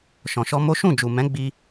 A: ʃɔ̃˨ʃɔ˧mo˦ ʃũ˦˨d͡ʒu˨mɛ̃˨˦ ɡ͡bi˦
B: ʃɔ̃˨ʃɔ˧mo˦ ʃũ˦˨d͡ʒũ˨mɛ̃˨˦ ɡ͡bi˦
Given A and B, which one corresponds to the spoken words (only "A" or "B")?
A